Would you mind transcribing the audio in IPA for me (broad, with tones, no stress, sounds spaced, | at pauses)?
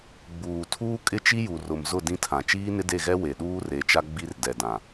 ɡ͡b uː˨ tʰ uː˦ kʼ ɪ˦ t͡ʃ i˦ j u˨ r ʊ˨ m z ʊ˦˨ d ĩ˦ tʰ ã˨ t͡ʃ iː˦ n ɪ˦ d e˦˨ ɣ ɛ˦ w e˨ ɗ uː˦ r e˨˦ t͡ʃ a˦ ɡ͡b i˦ r d ɛ˨ d ã˨